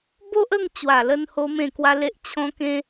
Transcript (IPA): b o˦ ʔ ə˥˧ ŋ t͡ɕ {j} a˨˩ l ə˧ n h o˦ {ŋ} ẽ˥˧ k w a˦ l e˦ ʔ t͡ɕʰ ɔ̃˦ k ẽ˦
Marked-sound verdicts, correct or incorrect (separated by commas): incorrect, incorrect